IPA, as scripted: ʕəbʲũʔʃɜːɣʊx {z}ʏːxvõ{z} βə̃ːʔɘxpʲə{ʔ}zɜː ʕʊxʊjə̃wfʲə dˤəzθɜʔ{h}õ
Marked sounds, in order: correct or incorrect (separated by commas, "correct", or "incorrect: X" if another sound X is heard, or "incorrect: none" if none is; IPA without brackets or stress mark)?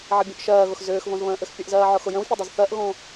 correct, correct, correct, incorrect: ɣ